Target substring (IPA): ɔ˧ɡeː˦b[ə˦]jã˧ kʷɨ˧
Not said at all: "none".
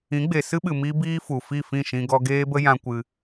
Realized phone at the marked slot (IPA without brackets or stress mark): ə˦